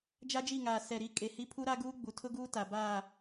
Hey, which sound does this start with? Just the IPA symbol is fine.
d͡ʒ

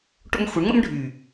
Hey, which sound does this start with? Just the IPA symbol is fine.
ʈ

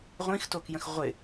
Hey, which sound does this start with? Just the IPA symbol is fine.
ʁʷ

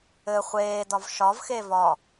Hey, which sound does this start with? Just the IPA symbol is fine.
ɘ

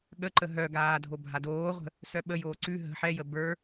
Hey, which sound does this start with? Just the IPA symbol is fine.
ɠ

